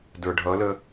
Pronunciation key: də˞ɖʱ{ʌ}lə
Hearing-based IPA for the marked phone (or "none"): ʌ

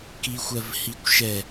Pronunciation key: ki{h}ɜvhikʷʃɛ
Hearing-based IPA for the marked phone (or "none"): xʷ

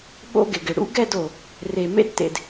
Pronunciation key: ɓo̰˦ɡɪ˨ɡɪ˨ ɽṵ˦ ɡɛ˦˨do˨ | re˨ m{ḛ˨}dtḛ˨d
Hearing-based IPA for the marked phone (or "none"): ḛ˦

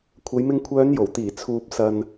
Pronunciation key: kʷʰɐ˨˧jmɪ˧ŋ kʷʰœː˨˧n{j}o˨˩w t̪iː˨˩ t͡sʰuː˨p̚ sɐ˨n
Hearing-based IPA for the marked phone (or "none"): j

